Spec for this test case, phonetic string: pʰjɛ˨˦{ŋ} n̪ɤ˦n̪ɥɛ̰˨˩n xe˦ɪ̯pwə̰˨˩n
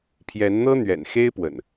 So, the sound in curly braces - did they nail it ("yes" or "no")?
no